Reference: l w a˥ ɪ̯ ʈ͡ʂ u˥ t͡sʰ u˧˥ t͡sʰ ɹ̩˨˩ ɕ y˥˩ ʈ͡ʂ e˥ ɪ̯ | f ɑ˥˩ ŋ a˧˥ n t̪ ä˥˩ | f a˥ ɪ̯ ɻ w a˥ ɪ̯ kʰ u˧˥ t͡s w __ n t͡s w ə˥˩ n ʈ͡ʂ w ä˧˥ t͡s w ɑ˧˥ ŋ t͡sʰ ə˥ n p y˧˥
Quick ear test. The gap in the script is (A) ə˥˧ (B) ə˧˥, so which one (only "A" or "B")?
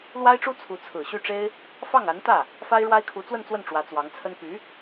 A